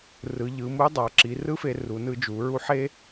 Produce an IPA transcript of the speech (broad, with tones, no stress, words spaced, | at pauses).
rɯ˩˧ ʎɯ˩˧mu˧˥dˤa˩˧ǁi˩˧ rɯ˥fe˧ ru˩˧nɯ˧d͡ʒu˩˧ ɹu˧˥ħe˥